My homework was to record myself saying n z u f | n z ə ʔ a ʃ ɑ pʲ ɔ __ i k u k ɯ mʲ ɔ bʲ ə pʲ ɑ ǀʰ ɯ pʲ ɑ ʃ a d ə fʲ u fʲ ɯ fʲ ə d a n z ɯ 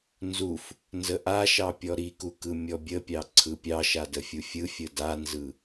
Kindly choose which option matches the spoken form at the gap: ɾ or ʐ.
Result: ɾ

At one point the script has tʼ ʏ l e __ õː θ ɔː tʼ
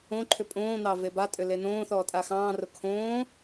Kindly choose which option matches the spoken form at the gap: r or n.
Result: n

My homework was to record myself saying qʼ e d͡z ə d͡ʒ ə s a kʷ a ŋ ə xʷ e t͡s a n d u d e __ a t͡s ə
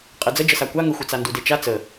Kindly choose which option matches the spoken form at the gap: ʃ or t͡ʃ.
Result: t͡ʃ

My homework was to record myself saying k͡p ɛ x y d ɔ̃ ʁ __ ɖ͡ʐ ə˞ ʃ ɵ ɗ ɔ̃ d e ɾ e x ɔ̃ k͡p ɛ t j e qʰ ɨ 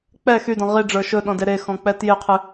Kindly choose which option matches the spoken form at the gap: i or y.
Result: i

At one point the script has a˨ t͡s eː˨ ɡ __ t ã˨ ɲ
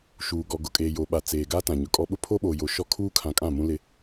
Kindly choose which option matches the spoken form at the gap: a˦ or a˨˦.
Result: a˦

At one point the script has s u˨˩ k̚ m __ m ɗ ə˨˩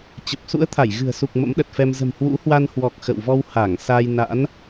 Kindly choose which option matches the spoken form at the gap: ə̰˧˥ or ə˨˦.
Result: ə̰˧˥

